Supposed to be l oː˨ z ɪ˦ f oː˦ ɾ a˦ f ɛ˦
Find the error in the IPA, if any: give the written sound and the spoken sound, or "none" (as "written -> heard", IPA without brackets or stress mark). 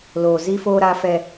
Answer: ɪ˦ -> i˦